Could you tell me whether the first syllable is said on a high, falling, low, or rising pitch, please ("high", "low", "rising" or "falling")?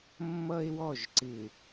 high